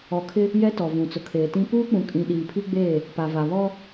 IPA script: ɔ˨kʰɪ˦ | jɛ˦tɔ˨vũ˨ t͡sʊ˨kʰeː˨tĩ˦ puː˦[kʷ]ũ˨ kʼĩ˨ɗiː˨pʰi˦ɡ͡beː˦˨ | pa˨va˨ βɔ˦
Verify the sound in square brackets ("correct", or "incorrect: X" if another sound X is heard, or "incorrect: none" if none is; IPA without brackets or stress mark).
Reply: incorrect: k͡p